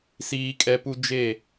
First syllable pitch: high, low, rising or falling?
high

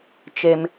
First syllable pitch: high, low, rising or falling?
high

